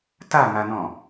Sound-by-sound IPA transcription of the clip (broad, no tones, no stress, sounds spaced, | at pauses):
t a ŋ a n ɔ̃